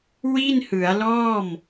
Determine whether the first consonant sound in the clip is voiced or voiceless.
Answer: voiced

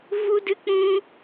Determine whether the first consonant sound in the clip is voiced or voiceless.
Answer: voiced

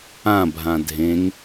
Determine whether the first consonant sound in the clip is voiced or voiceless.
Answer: voiced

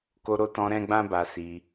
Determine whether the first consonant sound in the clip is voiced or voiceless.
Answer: voiceless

